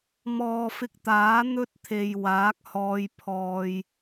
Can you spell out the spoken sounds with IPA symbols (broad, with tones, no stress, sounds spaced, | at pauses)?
m ɔː˨ f ɪ˧ k̚ t̪ aː˨˥ n̪ ɵ˥ t̚ t̪ʰ e˨ j w aː˨˥ k̚ h ɔː˧ j pʰ ɔː˧ j